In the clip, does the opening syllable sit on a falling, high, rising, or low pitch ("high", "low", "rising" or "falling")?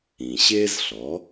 low